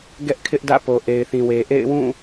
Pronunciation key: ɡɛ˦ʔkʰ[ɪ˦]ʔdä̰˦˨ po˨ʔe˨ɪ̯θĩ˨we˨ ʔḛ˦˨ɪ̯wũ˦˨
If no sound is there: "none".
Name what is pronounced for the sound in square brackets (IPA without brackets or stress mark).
ɪ˦